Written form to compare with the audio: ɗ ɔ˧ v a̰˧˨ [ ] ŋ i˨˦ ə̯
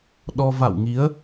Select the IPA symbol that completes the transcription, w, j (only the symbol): w